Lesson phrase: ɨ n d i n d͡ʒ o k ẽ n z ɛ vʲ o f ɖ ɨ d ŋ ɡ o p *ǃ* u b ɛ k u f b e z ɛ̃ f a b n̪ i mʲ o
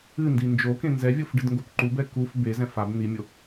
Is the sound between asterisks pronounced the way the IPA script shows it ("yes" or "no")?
yes